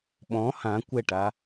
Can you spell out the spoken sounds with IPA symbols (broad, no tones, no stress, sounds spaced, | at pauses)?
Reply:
ɓ ɔ̃ h ã kʷ ɛ ʈ a